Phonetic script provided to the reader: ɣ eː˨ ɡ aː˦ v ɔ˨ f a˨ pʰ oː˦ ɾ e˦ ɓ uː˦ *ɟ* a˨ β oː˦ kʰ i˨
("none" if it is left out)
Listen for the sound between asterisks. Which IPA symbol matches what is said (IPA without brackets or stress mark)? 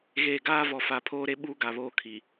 ɡ